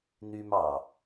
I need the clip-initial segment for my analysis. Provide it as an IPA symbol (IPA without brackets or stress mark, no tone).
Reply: n̪